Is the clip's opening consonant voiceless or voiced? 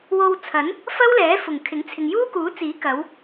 voiced